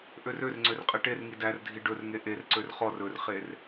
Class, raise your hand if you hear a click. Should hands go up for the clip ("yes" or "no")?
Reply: yes